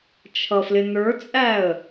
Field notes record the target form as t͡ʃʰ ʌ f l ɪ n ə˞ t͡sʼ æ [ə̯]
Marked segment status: correct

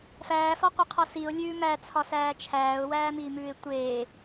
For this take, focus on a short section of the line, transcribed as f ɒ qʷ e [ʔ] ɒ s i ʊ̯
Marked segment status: incorrect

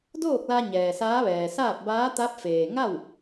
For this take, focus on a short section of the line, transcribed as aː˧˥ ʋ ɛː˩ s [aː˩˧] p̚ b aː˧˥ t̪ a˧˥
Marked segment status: incorrect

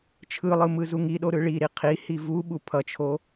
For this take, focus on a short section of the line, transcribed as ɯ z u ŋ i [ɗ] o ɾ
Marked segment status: correct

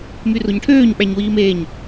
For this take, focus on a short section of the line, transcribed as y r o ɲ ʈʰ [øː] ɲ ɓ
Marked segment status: correct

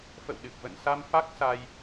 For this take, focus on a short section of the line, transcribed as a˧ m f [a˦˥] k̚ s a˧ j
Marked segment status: correct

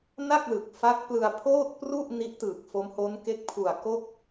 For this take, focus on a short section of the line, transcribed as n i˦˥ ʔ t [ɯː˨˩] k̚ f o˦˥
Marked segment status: correct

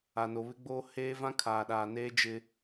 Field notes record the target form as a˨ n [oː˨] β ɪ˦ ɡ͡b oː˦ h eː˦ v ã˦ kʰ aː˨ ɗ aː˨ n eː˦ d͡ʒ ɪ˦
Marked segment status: incorrect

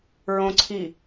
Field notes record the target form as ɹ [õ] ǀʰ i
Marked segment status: correct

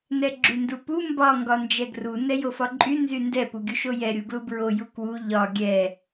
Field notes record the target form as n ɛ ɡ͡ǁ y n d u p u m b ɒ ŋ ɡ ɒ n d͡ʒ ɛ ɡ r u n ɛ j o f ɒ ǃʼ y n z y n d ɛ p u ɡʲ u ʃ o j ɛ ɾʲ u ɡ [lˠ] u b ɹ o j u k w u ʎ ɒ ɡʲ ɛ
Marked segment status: incorrect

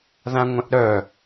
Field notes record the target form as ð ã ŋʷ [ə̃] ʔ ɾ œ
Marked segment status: incorrect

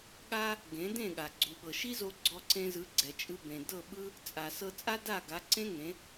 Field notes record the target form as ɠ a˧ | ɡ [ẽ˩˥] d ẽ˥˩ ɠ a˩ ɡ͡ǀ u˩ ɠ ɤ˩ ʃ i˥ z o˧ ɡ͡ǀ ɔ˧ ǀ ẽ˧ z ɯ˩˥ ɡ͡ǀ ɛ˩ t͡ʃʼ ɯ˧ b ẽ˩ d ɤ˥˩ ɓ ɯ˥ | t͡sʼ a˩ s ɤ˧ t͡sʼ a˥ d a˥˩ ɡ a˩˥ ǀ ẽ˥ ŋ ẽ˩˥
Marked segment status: correct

